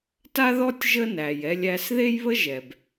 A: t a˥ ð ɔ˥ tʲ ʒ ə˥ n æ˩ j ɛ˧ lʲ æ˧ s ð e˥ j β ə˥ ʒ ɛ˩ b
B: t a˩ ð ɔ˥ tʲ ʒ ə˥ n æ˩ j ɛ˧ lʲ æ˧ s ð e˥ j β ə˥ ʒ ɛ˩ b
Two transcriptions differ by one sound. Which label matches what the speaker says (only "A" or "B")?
A